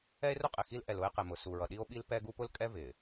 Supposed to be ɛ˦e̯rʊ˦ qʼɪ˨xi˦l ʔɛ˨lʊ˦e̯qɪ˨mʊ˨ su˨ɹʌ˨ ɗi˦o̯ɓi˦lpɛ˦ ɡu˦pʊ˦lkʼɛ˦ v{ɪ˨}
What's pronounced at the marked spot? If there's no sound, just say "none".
ɪ˨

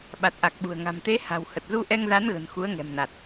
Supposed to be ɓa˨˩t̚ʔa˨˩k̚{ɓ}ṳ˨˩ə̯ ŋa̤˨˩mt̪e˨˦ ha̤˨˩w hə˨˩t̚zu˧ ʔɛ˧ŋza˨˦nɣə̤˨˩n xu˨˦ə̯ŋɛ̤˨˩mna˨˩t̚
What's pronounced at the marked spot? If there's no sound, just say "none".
ɓ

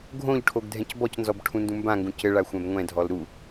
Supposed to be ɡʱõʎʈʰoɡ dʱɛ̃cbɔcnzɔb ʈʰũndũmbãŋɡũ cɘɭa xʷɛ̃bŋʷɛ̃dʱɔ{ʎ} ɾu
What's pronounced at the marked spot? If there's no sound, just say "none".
l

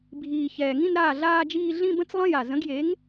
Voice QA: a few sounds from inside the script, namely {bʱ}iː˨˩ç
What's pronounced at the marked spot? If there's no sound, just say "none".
bʱ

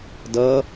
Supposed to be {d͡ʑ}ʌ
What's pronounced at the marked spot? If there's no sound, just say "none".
d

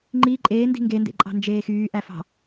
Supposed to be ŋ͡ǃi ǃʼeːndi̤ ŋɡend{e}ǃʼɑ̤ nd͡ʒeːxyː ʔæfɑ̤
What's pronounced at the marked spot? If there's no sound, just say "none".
ḛ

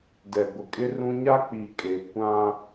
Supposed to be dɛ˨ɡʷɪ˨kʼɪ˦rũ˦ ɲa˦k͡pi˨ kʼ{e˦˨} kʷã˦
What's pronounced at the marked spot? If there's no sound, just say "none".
e˨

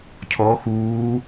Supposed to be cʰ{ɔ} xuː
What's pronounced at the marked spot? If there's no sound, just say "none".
ɔ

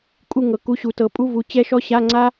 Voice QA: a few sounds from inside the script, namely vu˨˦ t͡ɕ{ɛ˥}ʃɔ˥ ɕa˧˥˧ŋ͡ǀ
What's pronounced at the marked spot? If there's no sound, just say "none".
ɛ˥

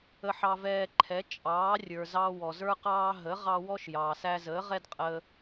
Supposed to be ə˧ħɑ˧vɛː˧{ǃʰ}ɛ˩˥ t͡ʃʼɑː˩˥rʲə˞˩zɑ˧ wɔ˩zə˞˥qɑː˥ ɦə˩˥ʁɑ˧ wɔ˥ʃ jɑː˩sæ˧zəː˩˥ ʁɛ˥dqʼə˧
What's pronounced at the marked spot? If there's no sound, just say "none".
ǃʰ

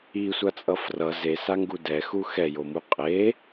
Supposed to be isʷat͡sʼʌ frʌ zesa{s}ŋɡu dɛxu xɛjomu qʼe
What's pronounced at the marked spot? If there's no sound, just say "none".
none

